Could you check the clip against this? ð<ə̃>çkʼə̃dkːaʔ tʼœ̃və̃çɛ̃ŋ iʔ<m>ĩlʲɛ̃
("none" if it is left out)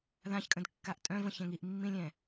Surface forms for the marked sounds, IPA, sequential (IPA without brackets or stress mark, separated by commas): ã, mː